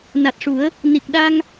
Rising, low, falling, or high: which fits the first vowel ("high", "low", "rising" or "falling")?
low